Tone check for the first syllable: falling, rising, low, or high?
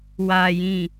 low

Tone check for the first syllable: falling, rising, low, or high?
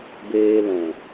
low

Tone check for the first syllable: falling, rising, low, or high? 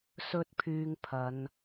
high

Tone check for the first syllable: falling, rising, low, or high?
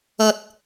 low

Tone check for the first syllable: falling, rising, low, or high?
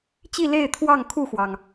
falling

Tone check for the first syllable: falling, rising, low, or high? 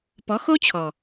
rising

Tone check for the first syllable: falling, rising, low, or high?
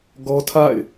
high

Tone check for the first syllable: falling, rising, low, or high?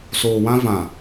low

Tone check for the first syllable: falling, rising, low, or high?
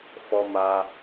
high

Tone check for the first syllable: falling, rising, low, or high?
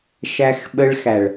high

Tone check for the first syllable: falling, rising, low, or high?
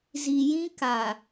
low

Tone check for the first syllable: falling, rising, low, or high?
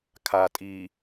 low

